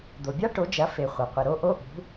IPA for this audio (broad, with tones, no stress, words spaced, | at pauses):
d̪o˩bʲa˦˥ ʈo˩˥d͡ʒɐ˩˥ fe˩ χʷɐ˩qʷɨ˩ɾo˦˥ ʔo˦˥ʔṳ˩˥